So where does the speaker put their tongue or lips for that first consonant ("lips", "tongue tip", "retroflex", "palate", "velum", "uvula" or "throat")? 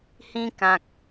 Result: throat